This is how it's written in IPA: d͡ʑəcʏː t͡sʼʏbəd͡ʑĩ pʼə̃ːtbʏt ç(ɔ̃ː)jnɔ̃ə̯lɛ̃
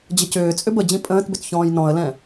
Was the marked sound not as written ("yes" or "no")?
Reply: no